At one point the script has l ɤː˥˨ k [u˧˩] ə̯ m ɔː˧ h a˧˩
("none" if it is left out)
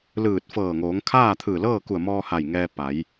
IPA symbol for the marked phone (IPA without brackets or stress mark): u˧˩